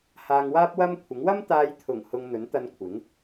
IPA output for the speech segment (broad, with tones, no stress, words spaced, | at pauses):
haː˧ŋwaː˥p̚wɐ˥mkʷʰɪ˨˥ŋ wɐ˥mt̪aː˧jt̪ʰʊ˨˩ŋ hʊ˧ŋn̪ɵ˨˥nt̪ɐ˧nkʷʰɪ˨˥ŋ